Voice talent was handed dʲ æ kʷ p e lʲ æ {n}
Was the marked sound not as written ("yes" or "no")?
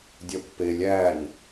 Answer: no